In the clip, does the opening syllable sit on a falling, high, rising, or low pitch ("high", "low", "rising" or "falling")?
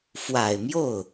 low